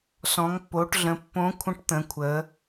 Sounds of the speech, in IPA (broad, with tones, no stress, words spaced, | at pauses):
sɔ̃˩˧ŋpːo˩˧ʈɮə̃˩˧ pːõ˧˥kʷʰə̃˧˥ʈt̪ə̃˩˧kʷʰə˩˧